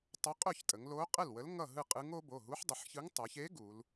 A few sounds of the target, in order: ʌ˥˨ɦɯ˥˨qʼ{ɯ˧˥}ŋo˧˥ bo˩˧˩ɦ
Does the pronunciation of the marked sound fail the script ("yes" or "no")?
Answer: no